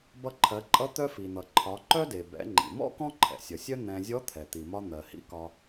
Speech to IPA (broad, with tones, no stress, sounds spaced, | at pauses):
b ʌ˧ ǃʰ ɜ˩˧ ǃʼ ʌ˧˥ t̪ œ˧ f i˩ n̪ ʌ˩ ǃʰ ɒ˩˧ ǃ œ˥ d e˩ b ɛ̰˩˧ ŋ͡ǃ ḭ˩ m ɔ̰˥ k ɔ̃˥ ǃʰ ɛ̰˩ sʲ ʌ˩ sʲ œ˥ n̪ ɛ̃˧ zʲ ɔ˧˥ t̪ʰ ɛ˩ t̪ i˩ m ɒ˧ n̪ ɜ˩ h ḭ˧˥ k ɒ˧